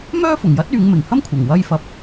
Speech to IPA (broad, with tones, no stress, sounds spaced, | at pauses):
m œː˥ f ʊ˨˩ ŋ j ɐ˥ t̚ yː˨˧ ŋ m ɪ˨˩ ŋ h ɐ˥ m kʷʰ ɐ˨˩ ŋ w ɐ˧ j f ɐ˨˥ p̚